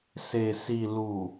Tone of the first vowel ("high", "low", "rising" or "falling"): low